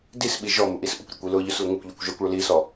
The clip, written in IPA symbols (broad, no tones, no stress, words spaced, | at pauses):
disɓi ʒɔ muʔisʔʊkʷɾʲɔkʷ ilʊʎʊs lʊŋʊkʷʎukʷ ʒakʷɭʊlisɔ